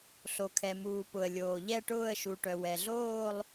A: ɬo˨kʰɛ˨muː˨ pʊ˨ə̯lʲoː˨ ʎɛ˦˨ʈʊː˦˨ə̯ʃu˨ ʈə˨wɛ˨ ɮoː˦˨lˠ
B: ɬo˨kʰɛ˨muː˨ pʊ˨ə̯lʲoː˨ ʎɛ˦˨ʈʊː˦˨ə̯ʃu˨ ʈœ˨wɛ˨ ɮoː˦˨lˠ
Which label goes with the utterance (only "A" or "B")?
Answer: B